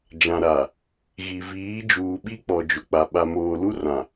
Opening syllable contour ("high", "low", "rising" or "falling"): low